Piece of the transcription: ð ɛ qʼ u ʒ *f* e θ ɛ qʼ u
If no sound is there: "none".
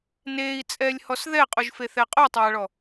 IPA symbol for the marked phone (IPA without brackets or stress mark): f